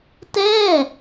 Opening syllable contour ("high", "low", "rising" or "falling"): falling